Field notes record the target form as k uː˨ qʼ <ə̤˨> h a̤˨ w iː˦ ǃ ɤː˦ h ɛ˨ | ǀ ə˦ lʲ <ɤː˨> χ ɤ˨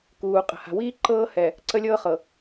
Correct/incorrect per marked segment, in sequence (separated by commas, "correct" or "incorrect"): correct, incorrect